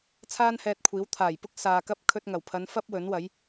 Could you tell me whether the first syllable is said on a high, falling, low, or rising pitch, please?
high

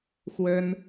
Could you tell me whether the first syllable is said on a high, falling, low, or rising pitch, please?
high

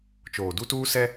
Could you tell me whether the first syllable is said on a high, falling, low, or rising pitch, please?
low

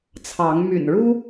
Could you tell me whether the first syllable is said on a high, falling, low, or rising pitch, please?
rising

